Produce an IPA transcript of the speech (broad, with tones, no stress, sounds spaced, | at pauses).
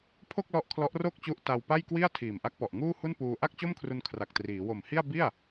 pʰ o˥˩ k̚ l ɔ˦˥ ʔ kʰ l ɔ˦˥ ʔ r o˥˩ k̚ t͡ɕ u˦˥ ʔ t a˧ w p a˥˩ j k w i˥˩ a̯ tʰ iː˨˩ m ʔ a˦˥ k̚ p ɔ˨˩ ʔ ŋ uː˥˩ h u˥˩ n p uː˧ ʔ a˥˩ k̚ t͡ɕ o˥˩ m kʰ r u˧ n kʰ r a˨˩ k̚ t r iː˩˦ w o˨˩ m h i˥˩ a̯ b i˥˩ a̯